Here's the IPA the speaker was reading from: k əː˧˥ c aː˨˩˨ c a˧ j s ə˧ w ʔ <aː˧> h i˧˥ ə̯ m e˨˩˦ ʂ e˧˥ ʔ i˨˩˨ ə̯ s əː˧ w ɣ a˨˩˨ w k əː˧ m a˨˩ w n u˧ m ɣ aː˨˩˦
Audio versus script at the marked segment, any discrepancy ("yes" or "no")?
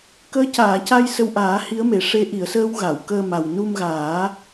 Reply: yes